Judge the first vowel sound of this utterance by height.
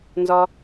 low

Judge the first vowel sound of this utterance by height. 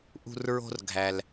high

